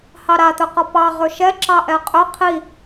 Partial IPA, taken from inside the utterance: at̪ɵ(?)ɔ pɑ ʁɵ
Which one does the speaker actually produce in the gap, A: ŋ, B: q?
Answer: B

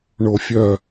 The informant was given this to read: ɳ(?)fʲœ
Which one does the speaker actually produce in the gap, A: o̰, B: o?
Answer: B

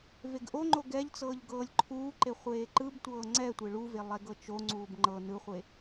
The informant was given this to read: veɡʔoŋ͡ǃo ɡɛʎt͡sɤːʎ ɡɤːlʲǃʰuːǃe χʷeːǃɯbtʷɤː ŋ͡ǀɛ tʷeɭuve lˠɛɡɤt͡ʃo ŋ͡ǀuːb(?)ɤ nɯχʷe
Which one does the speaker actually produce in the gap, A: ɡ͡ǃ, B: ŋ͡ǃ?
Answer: B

